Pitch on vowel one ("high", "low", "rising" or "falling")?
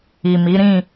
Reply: low